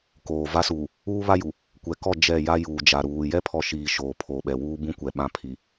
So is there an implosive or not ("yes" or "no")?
yes